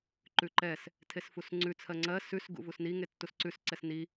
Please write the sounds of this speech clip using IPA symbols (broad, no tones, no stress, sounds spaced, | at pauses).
ǃ ʉ ǃ ɛ s | tʰ e s f u s ŋ͡ǀ ʉ t͡sʰ ɜ ŋ͡ǀ ɜ s ʉ s ɡ ṵ v u s n i ŋ e tː u s ǀ ʉ s ǀ ɛ s n i